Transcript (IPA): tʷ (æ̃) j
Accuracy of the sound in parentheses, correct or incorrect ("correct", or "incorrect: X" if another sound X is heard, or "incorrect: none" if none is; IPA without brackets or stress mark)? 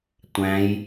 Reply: correct